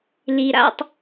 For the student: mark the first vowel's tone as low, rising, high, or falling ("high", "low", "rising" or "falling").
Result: low